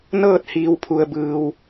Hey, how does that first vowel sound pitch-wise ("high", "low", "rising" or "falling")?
falling